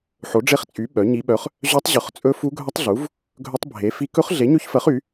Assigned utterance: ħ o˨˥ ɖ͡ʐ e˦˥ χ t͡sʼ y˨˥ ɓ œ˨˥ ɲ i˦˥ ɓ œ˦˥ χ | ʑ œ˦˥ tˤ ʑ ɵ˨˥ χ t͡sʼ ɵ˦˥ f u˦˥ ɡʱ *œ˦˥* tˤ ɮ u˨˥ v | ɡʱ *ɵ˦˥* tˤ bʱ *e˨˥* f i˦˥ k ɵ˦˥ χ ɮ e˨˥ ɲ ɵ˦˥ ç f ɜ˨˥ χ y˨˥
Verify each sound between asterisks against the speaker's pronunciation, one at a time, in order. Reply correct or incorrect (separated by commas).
correct, correct, correct